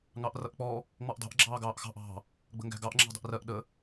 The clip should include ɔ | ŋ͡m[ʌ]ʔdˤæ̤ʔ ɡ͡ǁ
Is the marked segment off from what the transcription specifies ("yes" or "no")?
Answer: yes